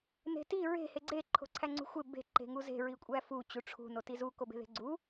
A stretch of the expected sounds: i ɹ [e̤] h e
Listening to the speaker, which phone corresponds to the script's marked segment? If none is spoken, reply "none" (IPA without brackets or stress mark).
e̤